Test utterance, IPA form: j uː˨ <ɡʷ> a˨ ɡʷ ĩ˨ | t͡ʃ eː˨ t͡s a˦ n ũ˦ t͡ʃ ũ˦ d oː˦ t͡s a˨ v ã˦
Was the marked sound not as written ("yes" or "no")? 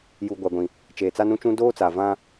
no